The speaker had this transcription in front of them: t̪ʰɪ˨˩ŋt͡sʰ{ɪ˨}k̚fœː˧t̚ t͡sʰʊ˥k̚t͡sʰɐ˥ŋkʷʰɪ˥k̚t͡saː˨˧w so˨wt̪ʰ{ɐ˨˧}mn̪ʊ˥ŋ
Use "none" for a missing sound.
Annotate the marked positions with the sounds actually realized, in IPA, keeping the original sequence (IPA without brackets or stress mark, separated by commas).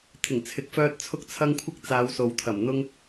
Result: ɪ˨˥, ɐ˨˩